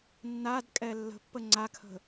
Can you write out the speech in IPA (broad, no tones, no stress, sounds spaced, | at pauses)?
nː a d kʼ ɛ lː ə̤ pː ə ŋ͡ǀ a kʰ ə̤